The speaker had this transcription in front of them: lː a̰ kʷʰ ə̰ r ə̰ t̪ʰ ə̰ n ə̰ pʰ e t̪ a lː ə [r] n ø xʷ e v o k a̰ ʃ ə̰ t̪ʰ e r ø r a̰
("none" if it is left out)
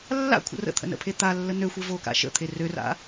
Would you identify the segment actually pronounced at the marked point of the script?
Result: none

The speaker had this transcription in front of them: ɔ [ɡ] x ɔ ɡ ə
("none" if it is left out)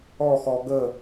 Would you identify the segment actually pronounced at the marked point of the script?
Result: none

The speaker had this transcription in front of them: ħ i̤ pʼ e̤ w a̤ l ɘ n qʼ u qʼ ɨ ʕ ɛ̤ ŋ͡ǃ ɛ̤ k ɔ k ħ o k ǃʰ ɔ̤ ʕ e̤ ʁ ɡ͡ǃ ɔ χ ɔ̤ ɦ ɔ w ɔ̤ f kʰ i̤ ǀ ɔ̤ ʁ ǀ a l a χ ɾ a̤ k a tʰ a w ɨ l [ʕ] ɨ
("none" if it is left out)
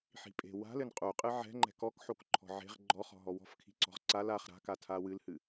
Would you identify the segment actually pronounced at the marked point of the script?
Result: h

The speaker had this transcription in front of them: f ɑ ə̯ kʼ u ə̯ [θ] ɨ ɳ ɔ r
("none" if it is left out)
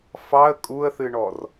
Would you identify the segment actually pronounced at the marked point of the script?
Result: θ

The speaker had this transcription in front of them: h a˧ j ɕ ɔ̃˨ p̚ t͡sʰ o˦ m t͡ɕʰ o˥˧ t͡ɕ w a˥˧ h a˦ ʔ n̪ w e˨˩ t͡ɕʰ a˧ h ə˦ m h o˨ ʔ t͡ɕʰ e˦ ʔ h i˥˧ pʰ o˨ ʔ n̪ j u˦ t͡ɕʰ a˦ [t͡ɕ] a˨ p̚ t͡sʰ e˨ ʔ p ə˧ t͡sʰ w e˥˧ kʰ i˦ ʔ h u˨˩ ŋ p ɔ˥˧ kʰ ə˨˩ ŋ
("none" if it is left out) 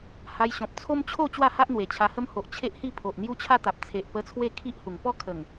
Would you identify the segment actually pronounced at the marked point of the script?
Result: t̪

